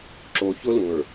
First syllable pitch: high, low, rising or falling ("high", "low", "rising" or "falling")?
low